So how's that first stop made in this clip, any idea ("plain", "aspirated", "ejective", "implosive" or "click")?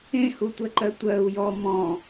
plain